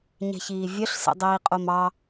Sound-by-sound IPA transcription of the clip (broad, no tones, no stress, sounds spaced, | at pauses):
ɲ ɛ̤ ç iː vʲ œ ɬ s ḛ dˤ iː qʼ o m ɑ